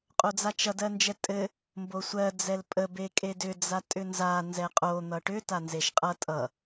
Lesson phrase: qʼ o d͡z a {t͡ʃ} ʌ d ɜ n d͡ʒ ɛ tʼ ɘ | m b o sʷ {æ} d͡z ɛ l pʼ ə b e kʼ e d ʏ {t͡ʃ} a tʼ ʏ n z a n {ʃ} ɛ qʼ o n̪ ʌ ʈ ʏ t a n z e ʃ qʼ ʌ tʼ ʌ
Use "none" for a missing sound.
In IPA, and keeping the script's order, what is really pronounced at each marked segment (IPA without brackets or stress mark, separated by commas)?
t͡ʃ, ɜ, d͡z, z